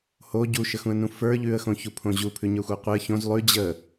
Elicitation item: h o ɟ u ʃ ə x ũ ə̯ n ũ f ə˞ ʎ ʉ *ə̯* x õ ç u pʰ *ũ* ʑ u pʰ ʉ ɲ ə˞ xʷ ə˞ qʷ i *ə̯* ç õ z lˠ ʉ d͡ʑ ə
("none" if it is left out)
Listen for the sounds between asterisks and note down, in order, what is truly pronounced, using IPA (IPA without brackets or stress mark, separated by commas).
ə̯, õ, ə̯